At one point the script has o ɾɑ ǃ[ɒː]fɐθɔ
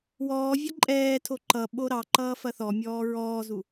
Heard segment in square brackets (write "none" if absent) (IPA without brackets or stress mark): ʌː